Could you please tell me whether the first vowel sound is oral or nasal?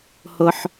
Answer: oral